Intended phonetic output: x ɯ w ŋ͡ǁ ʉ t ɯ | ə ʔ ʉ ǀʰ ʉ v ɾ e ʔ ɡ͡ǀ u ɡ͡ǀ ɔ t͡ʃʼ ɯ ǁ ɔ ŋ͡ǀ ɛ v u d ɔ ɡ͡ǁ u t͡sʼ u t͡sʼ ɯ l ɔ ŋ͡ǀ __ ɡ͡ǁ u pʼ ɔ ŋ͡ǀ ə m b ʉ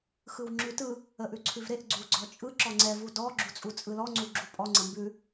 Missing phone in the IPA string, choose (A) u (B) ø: A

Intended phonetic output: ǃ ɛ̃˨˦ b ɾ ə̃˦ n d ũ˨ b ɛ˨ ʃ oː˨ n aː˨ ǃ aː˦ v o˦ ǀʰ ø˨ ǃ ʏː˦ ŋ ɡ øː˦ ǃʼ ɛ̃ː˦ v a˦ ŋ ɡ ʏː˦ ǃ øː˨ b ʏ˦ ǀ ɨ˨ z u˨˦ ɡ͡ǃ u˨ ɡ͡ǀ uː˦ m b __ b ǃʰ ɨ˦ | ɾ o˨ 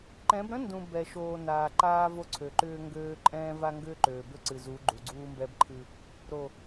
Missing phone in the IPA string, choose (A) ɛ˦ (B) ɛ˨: A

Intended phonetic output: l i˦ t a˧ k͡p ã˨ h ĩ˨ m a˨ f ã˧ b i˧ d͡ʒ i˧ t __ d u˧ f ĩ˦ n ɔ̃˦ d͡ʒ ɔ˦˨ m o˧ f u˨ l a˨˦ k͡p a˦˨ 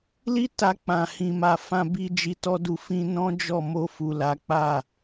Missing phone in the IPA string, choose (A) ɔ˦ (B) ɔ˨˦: A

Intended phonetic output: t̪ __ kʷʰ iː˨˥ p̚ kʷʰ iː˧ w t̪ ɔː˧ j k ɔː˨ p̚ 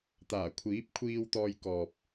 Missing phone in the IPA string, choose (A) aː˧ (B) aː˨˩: B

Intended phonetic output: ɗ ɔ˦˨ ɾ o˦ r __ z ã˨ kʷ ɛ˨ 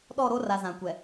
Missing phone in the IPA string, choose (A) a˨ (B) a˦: A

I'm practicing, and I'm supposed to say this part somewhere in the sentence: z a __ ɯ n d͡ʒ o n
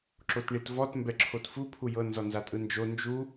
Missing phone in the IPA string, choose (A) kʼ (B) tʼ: B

